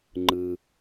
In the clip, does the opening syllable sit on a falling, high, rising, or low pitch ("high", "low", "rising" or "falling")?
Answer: low